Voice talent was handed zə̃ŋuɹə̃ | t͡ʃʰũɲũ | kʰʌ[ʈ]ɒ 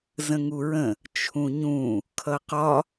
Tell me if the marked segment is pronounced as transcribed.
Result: no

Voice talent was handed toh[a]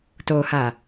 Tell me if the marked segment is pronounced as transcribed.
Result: yes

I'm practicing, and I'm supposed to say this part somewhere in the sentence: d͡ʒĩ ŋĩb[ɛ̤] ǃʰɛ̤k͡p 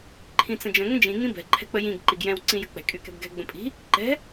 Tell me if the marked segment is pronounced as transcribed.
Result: yes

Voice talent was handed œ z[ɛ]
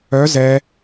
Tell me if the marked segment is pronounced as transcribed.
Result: yes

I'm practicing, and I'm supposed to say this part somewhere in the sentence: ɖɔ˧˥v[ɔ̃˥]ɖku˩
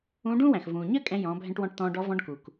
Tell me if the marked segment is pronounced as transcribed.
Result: no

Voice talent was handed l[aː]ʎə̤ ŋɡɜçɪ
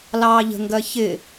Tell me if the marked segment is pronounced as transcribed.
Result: no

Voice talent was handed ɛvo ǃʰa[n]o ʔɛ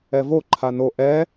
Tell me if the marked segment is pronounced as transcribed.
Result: yes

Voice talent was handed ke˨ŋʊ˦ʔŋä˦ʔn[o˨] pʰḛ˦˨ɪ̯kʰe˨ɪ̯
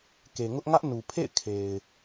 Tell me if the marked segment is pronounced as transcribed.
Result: no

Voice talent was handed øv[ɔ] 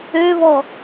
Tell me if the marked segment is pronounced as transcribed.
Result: yes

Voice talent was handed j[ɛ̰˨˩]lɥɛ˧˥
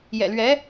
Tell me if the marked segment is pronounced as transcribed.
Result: yes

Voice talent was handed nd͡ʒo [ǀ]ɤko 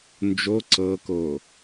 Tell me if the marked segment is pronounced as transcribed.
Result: yes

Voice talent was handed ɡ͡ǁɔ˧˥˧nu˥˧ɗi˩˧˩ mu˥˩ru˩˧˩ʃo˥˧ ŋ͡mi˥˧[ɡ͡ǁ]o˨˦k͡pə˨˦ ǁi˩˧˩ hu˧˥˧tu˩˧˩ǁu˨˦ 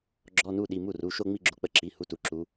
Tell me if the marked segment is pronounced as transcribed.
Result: yes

